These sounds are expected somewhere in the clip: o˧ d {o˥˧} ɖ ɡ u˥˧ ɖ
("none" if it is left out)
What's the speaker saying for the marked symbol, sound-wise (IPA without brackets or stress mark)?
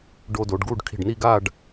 o˩˧